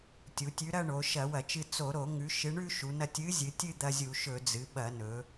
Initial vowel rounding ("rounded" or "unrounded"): rounded